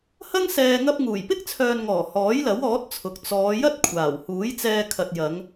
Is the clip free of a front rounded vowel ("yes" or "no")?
no